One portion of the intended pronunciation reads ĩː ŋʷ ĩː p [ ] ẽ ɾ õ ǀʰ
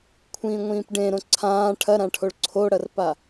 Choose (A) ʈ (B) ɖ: B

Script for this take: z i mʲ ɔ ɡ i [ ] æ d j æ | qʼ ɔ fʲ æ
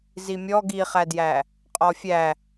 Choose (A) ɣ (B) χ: B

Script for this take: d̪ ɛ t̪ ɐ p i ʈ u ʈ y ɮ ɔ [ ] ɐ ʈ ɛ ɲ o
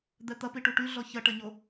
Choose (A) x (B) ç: B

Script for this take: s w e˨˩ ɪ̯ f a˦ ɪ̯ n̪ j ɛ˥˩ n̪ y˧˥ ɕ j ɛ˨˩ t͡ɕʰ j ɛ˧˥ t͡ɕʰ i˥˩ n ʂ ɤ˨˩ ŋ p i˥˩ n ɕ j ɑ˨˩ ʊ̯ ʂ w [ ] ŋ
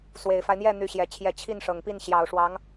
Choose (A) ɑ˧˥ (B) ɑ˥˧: A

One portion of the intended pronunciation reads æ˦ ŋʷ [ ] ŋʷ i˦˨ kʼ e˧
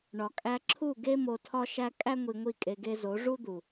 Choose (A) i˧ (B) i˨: A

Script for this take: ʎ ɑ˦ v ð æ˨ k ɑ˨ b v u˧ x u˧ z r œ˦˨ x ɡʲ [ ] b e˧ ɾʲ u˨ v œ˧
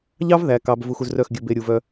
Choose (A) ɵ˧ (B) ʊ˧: A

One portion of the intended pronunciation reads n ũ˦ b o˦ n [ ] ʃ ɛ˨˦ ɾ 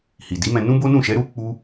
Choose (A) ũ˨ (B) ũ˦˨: B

